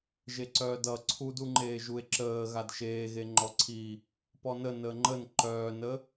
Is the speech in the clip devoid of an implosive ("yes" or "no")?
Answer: yes